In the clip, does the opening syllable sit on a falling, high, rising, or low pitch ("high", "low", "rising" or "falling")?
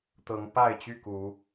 rising